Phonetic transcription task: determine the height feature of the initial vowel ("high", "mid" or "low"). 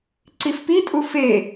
high